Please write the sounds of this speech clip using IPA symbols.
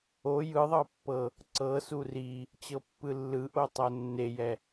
o j ɯ ðˤ ɤ pː ɤ | ǀ ɤ s u r i | t͡ɕ ɤ pː ɯ lː ɯ ʔ o tˤ o nː e j ɛ

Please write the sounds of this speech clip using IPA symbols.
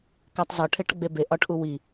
k æ tˤ z ɒ ʈʰ e ʈ ɡ͡b e b e ʔ ɒ ʈ ʔ u w i

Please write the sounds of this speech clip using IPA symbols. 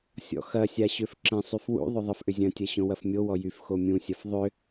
sʲ ɔ̰ x ɐ sʲ a ɕ ø f ǁ ə̃ sˤ y f w ṵ ðˤ ʏ ðˤ ə f ʔ ʏ zʲ ɐ̃ tʲ ɐ ɕ õ w ɐ f mʲ o w ɔ j y f x o mʲ ũ sʲ ɐ f ðˤ ʏ

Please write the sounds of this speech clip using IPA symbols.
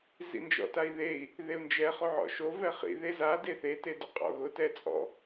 z ḭ n d͡ʒ ɔ̰ t a i̯ ð e i̯ | ð e u̯ n d͡ʒ ɛ χ o ʕ ɔ̰ ʃ o v ɛ χ ḭ ð e z a d e θ e t e d ʊ qʼ ɔ̰ ɣ ʊ t ɛ t͡sʼ ɔ̰

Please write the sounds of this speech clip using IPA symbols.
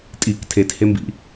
tʼ i k tʰ e t h e m b ḭ

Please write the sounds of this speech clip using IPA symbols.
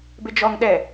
b ɪ d͡ʒ ɔ ŋ ɗ ɛ

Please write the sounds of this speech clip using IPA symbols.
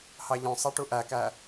h ɑ ʎ œ̃ sˤ ɛ ʈ u ʔ æ k æ

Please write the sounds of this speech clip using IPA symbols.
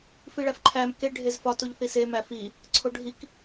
f i ɭ æ f ǃʰ æ m k e ɖʱ e z f ɒ t u ʎ θ i s e m æ f i | ǀʰ o ɖʱ i k

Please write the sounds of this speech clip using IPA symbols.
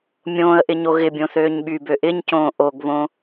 mʲ õː ə̯ ʔ ɪ ɲ o ɣ ɪ bʲ õ θ øː ɲ ɓ y b ø ʔ ɪ ɲ c õː ʔ o ɡ β õ

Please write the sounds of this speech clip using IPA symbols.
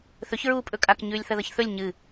θ ɵ ç ɹ uː pʼ ɵ kʼ a k ɲ ʉː lʲ θ ɐ ð ɐ ç θ ɵ lʲ ɲ ɨ

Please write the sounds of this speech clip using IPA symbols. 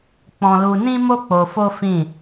k͡p ɔ̃˦ l u˦ n ĩ˦ m o˦ k͡p o˧ f o˦ f ĩ˦˨

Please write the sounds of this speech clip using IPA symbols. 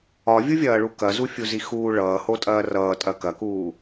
ɒ vʲ u vʲ ɐː ɭ u k ɐ z u fʲ u z i x uː ɭ ʌː h o tʼ ɐː r ʌː tʼ ɐ k ɐ k uː

